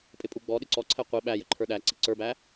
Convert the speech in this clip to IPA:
pʼ ɪ pʼ u ɡ͡b ɔ ɗ ɪ ǀ ɔ ǀʰ ɛ qʷ i ɓ æ j ə ǃʰ ə˞ ɗ æ ǀ i ǀ ə˞ b æ

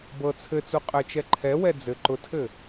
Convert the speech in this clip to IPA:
b ɤ t͡sʰ ɘ t͡s u qʼ ɘ t͡ʃ ɛ ǃʰ ɛ w ɛ d͡z ɘ ǃ ʊ tʰ ɘ

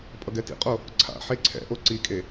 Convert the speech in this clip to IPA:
pʼ ʌ ɡ ɛ t ḭ qʼ o | ǀʰ a̰ ħ e ǀʰ ɛ̰ ʔ o ǀ i kʼ e

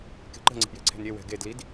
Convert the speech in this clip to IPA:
k e̤ ǃ ə̤ ŋ͡ǀ e̤ p j ɛ̤ ǀʰ e̤ n ɾʲ e w ɛ̤ ɡ e d l i d

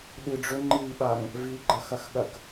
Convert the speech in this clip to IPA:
ɗ ɨ ɖ͡ʐ ɵ ŋ͡ǃ i ɓ a ŋ | v i ɡ͡ǃ ɐ x ɐ x ɠ ɐ k

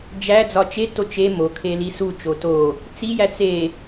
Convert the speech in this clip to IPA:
d͡ʒ æ d͡z ɒ t͡ʃ e t o t͡ʃ e m o kʰ e l i s u t͡ʃ o t o | t͡s i j æ t͡s e

